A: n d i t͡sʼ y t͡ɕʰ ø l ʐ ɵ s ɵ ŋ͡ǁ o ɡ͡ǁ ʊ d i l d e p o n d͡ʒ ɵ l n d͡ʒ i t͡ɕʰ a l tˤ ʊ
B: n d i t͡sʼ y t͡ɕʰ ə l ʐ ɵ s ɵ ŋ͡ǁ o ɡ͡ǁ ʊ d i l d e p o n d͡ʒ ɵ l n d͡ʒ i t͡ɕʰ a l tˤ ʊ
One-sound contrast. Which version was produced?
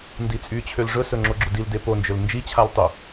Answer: A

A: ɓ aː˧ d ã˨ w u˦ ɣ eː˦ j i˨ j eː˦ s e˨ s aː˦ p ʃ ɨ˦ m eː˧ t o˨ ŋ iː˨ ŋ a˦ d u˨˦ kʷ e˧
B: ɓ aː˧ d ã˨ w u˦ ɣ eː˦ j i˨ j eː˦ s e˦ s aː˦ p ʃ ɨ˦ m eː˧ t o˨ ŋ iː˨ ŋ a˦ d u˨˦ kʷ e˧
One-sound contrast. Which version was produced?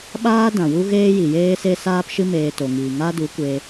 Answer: B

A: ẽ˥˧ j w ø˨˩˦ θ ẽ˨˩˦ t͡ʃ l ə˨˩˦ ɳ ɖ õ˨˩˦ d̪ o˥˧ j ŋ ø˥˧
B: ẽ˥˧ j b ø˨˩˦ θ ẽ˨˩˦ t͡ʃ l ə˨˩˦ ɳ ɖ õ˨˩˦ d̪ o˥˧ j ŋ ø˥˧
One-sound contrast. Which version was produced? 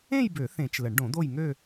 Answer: B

